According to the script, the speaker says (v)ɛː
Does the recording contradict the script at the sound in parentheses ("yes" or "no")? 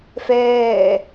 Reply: yes